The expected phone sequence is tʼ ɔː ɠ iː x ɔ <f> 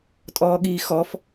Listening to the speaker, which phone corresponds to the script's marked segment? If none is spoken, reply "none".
f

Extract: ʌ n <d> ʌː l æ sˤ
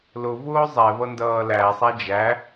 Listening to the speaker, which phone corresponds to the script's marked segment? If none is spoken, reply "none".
d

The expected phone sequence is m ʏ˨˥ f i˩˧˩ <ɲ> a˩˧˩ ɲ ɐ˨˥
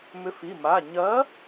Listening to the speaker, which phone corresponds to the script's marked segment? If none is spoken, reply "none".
m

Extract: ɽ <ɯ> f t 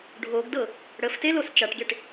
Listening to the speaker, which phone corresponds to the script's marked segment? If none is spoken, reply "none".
ə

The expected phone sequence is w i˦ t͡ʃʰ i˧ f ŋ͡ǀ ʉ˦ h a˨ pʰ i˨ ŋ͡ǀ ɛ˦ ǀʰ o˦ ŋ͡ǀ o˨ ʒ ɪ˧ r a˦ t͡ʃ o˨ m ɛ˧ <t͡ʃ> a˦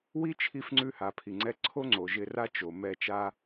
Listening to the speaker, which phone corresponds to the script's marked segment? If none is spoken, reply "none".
t͡ʃ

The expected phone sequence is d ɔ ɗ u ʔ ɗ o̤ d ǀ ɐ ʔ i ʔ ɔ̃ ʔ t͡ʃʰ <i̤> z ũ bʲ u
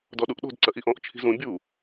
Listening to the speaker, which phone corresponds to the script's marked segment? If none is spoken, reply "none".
i̤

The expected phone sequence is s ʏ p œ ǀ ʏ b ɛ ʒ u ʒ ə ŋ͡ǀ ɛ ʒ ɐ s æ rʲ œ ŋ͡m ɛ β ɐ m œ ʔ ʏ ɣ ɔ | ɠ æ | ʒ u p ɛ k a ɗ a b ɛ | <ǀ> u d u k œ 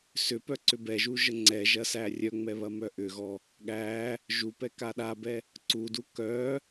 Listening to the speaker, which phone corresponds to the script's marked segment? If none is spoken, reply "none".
ǀ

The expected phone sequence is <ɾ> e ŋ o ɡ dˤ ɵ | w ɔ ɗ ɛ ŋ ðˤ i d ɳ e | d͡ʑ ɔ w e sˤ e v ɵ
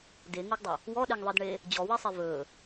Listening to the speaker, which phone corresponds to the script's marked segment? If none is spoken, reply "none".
d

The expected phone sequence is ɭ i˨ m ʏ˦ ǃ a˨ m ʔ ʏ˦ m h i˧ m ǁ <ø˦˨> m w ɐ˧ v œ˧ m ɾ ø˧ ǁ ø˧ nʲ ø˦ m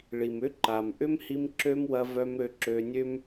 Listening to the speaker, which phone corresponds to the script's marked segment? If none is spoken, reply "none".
ø˦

